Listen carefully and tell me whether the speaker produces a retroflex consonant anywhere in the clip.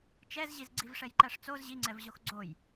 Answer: yes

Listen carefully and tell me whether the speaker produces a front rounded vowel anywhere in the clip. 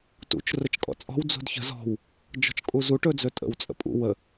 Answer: no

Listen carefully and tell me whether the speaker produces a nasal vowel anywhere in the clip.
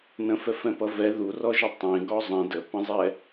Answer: yes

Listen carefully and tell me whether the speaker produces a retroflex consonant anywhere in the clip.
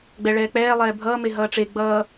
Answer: yes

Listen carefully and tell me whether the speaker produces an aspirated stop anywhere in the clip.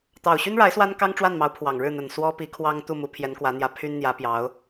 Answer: yes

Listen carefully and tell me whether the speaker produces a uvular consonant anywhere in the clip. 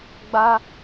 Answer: no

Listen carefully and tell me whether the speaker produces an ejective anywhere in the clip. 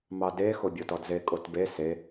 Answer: yes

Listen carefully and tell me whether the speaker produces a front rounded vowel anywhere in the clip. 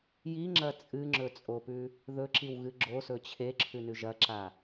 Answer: no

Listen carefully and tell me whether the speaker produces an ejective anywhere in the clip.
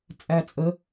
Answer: yes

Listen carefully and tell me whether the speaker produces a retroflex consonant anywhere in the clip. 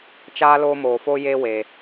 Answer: no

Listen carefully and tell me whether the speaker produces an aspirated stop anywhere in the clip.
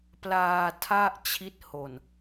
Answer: yes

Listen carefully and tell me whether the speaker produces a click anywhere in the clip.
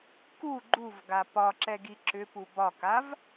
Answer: yes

